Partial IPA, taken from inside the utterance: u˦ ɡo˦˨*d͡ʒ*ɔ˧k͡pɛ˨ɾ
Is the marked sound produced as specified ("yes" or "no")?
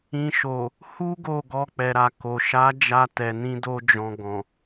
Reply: no